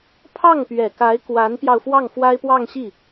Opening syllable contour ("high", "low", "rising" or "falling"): falling